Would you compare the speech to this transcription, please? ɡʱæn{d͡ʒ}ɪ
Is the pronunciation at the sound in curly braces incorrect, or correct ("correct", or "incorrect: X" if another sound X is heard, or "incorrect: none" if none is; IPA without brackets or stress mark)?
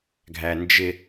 correct